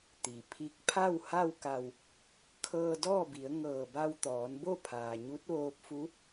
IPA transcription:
t̪ i˩ pʰ i˧˥ k̚ pʰ a˥˨ w h a˥˨ w k a˧˩ w | kʰ ɤː˧ d ɔː˥˨ b i˩˧ ə̯ ŋ ɤː˧˩ b a˧ w t̪ ɔː˩˧ n b o˥˨ pʰ aː˩ ɲ u˧˥ t̚ ʋ oː˧ p̚ f u˧˥

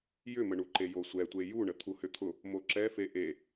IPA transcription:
j ʏ m ə ɳ u ǃ e j o sʷ ɛ tʷ e j u ɳ ə t̪ʰ u h ʏ t̪ʰ ʊ | m o ǁ ɛ f e ʔ e

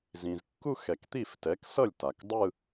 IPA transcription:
z ĩ˩ z kː u˥˧ x ɛ˩ k t̪ i˥˩ f t ɛ˩˥ k s ʌ˥˩ lʲ t a˩ k dˤ ɯ˥˧

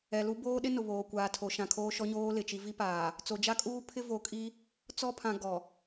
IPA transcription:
ɛ˨ l u˦ b oː˦ ɗ ɪ˦ n ʊ˨ β oː˨ kʷ aː˨ tʰ o˨ ʃ ã˨ kʰ oː˦ ʃ ɔ˦ ɲ oː˦ l ɪ˨ t͡ʃ i˦ v i˦ p aː˨ | t͡s o˨ d͡ʒ a˦ kʼ uː˦ pʰ ɪ˦ v o˨ kʼ i˦ | t͡s ɔ˦ pʰ ã˨ ɡ ɔ˨

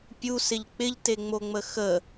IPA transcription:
pʲ u s ɪ ʎ k͡p ɪ ʎ t e ŋ͡m o ŋ͡m ə x ə

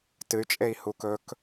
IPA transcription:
t ɨ y̯ t͡ʃʼ e i̯ h u k ɵ k

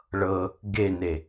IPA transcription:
ɭ ɤ | ɡ e n e

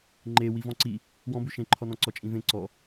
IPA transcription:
ŋ͡ǃ e w i v ɔ̃ ǀ i | w ɔ̃ b ʉ ʃ ẽ ǃʰ ɔ n ɔ̃ ǀ ɔ t͡ʃʼ ĩ v ẽ ǀ ɔ

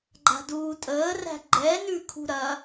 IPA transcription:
ɡ͡ǃ a̤ d uː tʼ əː r æ̤ ɡ͡ǃ ɛ n ʉ kʰ ṳ ɾ ɐ

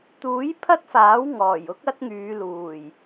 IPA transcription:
t̪ uː˨˥ j pʰ ɐ˥ t̚ f aː˨˥ w ŋ ɔː˨˩ j ʊ˥ k̚ ɐ˥ t̚ ŋ yː˨˧ l uː˨˩ j

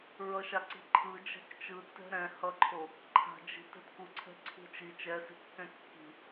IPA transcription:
ɹ ʌ ʃ a ǀ i̤ ǃʰ ɯ d͡ʒ ɛ̤ k t͡ʃ ɯ tː ɛ̤ ɾ ɛ̃ h ʌ ǃʰ o | ǃʰ a̤ d͡ʒ i̤ t ɛ̤ t k u ǀʰ ɛ̤ ǀʰ ṳ t͡ʃ i t͡ʃ ɛ s i̤ kː ɛ̃ kː i̤

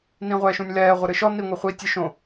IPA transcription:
n ĩ ʁʷ ɛː ʃ ũ nʲ l ɛː ʁʷ ɘ ɾ ɨ ʃ ɔ n i ŋʷ ɛ χʷ iː tʲ ɨ ʃ õ

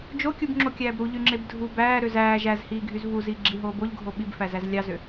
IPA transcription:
d͡ʒ o kʲ u b ŋ͡ǁ o kʲ æː b ɾ u ʎ y ŋ͡ǁ e b dʱ u b æː ɾ ø z æː ʒ æ z h iː ɡʱ y z v u z iː ɡ͡ǁ i ɦ oː b o ʎ ɡʱ o ɓ i b f æ z æ z lʲ ɑ z ø

